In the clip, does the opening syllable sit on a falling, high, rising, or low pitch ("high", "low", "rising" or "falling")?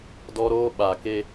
high